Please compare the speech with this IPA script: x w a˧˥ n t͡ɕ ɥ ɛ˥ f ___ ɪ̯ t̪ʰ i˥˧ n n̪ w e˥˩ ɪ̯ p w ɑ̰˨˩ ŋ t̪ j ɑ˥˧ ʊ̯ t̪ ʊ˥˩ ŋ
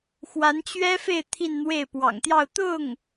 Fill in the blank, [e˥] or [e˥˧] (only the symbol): e˥˧